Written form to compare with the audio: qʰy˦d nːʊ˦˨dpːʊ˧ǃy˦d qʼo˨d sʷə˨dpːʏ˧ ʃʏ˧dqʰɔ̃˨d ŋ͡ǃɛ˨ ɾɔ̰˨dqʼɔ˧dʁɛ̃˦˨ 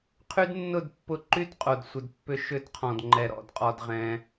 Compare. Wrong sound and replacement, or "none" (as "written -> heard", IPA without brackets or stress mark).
ɛ̃˦˨ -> ɛ̃˧